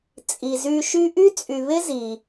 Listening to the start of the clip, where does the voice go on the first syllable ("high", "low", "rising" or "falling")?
low